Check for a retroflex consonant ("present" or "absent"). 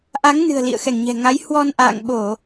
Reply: absent